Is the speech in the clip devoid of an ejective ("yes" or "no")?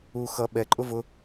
no